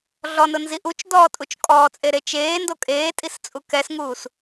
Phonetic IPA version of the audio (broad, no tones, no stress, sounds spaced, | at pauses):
ɮ ɔ n ʊ n z i ʔ u t͡ʃ d ɔː tʼ u t͡ʃ kʼ ɔː t͡sʼ e ɾ e t͡ʃ eː n d o kʼ eː tʼ i s t͡sʼ u k ɛ s ŋ uː s